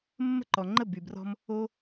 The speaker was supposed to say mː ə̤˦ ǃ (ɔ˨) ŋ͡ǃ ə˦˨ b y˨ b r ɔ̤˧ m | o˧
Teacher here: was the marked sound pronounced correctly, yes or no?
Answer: yes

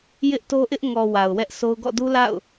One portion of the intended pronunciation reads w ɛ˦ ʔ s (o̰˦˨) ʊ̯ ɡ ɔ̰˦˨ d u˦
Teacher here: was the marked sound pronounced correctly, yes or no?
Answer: no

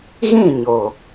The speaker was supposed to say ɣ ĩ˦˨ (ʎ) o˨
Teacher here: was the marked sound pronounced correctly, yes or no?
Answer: no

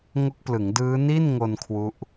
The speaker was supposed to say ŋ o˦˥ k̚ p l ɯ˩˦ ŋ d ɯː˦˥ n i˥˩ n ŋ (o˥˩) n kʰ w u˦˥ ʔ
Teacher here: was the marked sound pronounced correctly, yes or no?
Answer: no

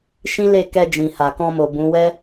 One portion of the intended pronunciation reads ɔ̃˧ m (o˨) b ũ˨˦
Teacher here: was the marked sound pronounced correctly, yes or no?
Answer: yes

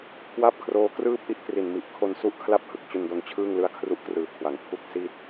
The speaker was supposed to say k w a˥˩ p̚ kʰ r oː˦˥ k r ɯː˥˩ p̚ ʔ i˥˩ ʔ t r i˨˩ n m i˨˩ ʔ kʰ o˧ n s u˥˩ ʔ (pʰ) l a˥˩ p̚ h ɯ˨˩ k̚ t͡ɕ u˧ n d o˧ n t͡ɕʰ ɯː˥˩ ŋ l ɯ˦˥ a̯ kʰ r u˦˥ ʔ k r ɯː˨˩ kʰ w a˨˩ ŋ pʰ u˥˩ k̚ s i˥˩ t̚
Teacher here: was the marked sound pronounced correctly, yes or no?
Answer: no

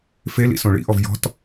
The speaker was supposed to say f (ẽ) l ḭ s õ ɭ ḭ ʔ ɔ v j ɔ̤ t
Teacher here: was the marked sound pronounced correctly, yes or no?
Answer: no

